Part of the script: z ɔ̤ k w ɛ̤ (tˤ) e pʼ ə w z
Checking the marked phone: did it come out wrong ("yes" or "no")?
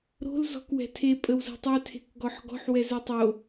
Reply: yes